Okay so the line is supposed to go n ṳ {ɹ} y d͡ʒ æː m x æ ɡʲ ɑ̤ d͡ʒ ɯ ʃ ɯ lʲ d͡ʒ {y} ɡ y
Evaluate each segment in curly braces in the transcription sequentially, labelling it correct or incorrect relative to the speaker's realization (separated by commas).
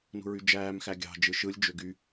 correct, incorrect